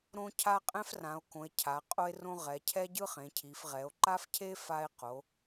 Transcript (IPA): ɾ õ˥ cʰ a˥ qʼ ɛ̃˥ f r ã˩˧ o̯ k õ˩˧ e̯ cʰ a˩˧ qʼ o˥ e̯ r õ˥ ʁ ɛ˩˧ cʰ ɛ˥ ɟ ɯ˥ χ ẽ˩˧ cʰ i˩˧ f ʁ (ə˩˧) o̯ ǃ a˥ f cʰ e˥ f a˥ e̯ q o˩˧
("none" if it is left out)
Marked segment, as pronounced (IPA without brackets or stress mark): ɛ˩˧